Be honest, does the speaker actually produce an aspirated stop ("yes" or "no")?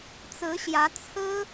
yes